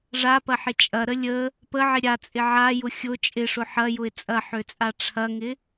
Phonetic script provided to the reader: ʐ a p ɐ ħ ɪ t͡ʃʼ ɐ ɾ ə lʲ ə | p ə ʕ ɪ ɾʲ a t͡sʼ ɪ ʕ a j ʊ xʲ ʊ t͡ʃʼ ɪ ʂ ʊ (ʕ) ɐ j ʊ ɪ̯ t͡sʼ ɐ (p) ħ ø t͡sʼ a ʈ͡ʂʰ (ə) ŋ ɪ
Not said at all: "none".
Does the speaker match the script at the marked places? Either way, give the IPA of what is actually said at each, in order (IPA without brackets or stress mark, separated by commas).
ħ, none, ɐ